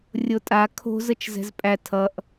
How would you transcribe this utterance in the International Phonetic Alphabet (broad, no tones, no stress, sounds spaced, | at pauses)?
rʲ o tʼ a kʰ o̤ z ə t͡ʃ z ɛ̤ z pʼ æ tʰ ʌ ʔ